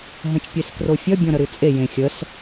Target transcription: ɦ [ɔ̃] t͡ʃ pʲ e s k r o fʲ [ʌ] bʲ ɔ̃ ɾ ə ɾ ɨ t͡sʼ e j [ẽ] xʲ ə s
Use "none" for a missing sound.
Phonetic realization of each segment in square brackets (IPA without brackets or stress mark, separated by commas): ə̃, ʌ, ẽ